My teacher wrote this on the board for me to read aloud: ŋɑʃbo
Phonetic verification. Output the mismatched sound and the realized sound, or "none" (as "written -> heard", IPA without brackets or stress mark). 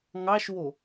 b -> w